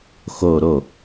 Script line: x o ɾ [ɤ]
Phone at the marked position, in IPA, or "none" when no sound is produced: o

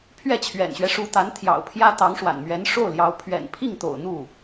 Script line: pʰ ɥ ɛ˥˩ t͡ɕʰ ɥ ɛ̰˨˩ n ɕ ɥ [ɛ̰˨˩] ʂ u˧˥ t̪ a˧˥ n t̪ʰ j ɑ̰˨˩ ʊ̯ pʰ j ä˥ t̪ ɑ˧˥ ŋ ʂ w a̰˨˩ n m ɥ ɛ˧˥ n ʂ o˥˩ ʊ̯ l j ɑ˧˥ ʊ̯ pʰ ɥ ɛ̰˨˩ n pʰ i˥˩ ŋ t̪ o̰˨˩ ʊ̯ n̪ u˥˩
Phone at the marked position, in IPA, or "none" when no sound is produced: ɛ˦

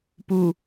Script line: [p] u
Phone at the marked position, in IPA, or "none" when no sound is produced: p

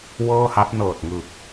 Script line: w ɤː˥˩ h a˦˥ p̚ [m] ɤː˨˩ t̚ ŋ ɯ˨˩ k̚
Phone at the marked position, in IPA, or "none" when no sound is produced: n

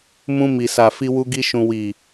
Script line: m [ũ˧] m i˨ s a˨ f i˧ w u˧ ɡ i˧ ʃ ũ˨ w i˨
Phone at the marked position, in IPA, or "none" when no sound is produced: ũ˧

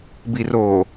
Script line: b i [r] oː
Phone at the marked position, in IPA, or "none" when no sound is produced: r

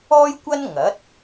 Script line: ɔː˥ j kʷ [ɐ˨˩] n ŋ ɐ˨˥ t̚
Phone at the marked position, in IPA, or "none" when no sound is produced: ɐ˥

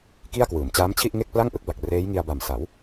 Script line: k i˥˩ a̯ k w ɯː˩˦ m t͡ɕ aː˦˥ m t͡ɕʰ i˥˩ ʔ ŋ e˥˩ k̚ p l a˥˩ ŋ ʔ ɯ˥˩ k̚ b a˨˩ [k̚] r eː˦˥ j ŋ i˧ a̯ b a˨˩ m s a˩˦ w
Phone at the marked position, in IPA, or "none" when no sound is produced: k̚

